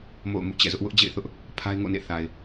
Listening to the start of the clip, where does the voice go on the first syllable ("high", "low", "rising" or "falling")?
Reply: falling